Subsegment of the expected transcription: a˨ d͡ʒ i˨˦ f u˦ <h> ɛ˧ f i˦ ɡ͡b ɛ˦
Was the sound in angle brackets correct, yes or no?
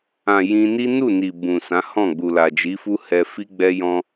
yes